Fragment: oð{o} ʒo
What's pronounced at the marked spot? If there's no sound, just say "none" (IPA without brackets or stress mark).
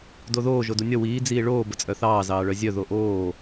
oː